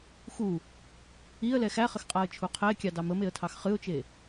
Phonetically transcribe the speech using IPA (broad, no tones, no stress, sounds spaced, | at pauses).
x u | i ə̯ l ɛ x æ χ ə x qʼ a ə̯ t͡ʃʰ u qʰ ɛ ɪ̯ kʲ ɑ d ɑ m ə m e ə̯ tʰ ɑ x χ ɨ ʊ̯ t͡ʃ e